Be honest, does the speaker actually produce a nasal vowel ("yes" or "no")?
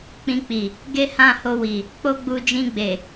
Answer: yes